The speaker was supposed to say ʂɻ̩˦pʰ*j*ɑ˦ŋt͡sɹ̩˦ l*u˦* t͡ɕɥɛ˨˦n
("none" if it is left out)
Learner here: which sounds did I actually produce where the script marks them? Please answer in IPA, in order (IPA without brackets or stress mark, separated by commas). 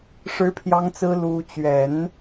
j, u˦